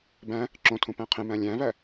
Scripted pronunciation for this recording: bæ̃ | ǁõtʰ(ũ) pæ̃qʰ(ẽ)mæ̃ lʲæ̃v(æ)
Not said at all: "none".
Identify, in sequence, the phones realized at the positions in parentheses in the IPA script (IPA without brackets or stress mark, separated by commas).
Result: ũ, ẽ, æ